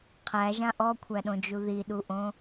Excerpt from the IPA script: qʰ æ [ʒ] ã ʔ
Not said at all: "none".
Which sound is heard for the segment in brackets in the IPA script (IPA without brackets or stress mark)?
ʒ